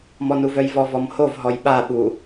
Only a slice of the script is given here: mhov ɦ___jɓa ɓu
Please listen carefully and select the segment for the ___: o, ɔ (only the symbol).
ɔ